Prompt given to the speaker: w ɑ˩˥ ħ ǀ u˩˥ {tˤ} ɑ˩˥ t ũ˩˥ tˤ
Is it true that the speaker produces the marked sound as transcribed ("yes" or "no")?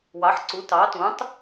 no